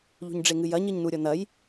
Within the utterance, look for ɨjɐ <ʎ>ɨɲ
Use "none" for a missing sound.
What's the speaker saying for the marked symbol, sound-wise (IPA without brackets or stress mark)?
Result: ɲ